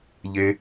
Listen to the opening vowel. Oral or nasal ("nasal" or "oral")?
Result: oral